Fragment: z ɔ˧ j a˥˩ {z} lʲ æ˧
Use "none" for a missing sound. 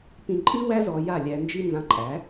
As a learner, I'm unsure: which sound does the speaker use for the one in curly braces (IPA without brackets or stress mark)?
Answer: none